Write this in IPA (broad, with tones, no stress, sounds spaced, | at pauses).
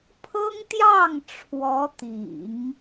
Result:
pʰ ɤ˥ ŋ t̪ j ɑ˥˩ ŋ ʈ͡ʂʰ w ɔ˧˥ t̪ ḭ˨˩˦ ŋ